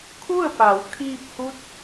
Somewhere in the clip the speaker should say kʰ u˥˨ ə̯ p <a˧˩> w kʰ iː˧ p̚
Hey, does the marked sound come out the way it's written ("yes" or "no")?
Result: no